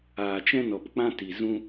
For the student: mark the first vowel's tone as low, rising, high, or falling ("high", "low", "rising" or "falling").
low